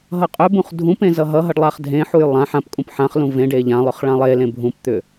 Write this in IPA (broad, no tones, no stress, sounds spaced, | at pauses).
ɦ ʌ qʼ ʏ b ũ χ dʱ ũ p ẽ z ʌ ɦ ʌ ɦ ʌ ɖ lˠ a χ dʱ ẽ ħ u j lˠ ã ħ ã p kʼ ũ p ħ ã χ l ũ v ẽ ɖ e ʎ ã lˠ ʏ χ ɭ ã lˠ e l ẽ bʱ ũ p t̪ ʏ